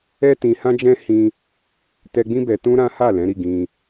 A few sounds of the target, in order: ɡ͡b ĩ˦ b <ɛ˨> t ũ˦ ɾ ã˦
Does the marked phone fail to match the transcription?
yes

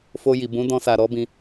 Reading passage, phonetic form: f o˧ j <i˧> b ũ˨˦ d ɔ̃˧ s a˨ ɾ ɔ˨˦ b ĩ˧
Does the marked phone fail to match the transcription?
yes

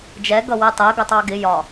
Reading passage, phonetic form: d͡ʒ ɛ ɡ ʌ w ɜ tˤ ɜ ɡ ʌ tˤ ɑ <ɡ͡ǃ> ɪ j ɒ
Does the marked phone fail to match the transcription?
yes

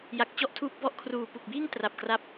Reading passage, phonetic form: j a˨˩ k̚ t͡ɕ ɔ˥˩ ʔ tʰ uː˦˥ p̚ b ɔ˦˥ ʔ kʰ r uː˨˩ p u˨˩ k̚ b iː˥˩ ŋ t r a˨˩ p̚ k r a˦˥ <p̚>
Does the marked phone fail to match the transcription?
no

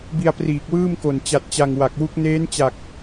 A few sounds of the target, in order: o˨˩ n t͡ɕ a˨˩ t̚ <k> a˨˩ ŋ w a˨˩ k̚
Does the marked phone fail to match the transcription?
yes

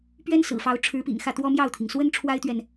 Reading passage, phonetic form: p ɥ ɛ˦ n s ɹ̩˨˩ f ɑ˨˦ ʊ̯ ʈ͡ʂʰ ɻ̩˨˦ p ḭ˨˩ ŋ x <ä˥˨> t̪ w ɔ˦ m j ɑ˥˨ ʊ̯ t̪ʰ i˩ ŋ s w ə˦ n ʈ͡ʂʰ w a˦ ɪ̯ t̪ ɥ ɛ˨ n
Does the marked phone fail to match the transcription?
no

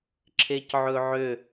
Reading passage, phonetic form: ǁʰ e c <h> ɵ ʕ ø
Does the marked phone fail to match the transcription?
yes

